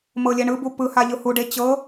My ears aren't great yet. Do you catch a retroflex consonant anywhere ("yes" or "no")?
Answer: yes